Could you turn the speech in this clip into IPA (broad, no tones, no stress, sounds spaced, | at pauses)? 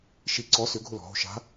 ʃ i ǀ ɔ s ʏ ɡʱ ʊ l ɔ̤ ɦ o̤ ʃ a̤